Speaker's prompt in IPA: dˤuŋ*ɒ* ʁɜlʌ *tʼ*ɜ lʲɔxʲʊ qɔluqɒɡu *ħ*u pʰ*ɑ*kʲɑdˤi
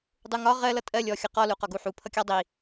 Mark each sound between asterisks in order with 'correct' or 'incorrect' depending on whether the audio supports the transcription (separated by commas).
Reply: correct, correct, correct, incorrect